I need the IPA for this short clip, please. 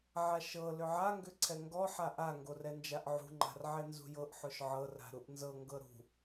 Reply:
ʕ a ʃ ɤ l ʏ ʕ a ŋ ɡ ʏ ǀʰ ɛ ŋ ɡ ɔ ħ a ʔ a ŋ ɡ o r ɛ n d͡ʒ a ʔ ʕ ṳ ŋ͡ǃ a̤ r ʕ ɛ n z ṳ j ɤ ʔ ħ o ʃ ʕ ɤ r a̤ ɾ u ʔ n z ɤ ŋ ɡ ɤ ɾ ṳ

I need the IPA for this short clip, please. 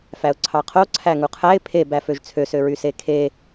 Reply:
f æ ʊ̯ ǀʰ ɑ qʰ o ǀʰ æ ŋ u qʰ æ ɪ̯ pʰ e b æ f ø ʒ t͡sʰ ø s ø ɹ y s e kʰ e

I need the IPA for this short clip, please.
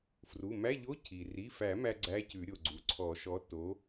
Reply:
f r u˩˧˩ m æ˧˥˧ ʎ o˧˥˧ cʰ i˩ r i˩˧˩ f æ˨˩˦ m æ˥ ɡ͡ǀ æ˧˥˧ c ʉ˨˩˦ ɾʲ o˩ ɡ͡ǀ u˩ ǀʰ ɔ˨˩˦ ʃ ɔ˨˥ t o˨˥

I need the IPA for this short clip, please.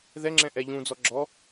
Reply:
ð ɛ ŋ͡ǁ ɛ̃ ʔ ɛ ʎ ũ d͡z ɔ ɡ͡ǁ ɔ

